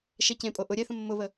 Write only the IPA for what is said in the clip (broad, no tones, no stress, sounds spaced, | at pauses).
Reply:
ʃ ɛ c ẽ pʼ o ʔ ʊ ɾʲ ɛ θ ə̃ mː ʊ β ə